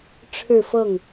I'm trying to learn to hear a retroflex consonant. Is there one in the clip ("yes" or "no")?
yes